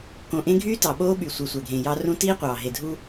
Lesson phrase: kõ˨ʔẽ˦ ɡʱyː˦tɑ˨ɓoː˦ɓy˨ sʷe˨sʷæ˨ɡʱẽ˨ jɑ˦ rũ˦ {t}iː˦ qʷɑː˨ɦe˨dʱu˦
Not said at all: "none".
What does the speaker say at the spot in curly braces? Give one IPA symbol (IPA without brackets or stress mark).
t